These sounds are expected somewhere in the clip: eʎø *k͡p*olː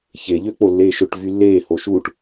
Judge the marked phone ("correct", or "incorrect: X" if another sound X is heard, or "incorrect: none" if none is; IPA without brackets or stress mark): correct